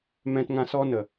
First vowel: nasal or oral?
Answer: nasal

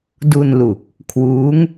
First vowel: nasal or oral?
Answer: oral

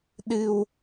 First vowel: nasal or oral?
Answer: oral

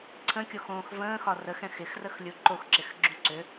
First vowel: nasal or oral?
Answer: nasal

